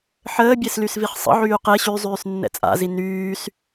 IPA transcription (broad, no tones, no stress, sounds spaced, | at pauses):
ħ əː bʲ e s l y s v i χ sˤ ə̰ ʕ yː q e ɕ y zˤ yː s nː ɛ̰ t͡sʼ a̰ z i n yː s